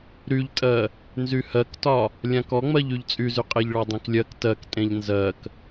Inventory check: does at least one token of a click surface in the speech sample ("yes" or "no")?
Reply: no